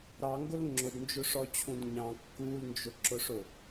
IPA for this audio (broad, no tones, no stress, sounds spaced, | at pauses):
ɾ ɑ ŋ ɡ ʊ l ŋ͡ǁ ʊ d n d͡ʒ ʊ ʂ ɔ t͡ɕʰ ũ d ɲ ɑ̃ kː u l n d͡ʒ ʊ ǁ ʊ ʂ ʊ